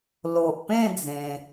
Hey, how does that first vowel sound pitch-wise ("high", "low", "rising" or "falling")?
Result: low